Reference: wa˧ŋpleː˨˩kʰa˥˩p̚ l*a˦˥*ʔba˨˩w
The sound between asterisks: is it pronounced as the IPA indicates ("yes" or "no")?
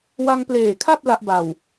yes